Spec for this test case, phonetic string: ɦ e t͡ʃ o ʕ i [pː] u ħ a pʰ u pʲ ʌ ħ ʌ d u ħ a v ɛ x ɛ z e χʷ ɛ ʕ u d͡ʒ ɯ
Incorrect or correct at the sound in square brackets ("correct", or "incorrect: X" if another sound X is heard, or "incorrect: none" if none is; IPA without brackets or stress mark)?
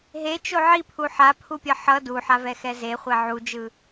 incorrect: pʰ